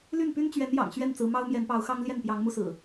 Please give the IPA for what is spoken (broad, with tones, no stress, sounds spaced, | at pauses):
l y˥˨ n p y˦ n t͡ɕ ɥ ɛ˨˦ n j ɑ̰˨˩ ŋ ɕ ɥ ɛ˥˨ n t͡s ɹ̩˨˦ m ɑ˦ ʊ̯ m j ɛ˨˦ n p ɑ˨˦ ʊ̯ x ɑ˦ ŋ l j ɛ˥˨ n p j ɑ˨˦ ŋ m u˧ s ɹ̩˨˩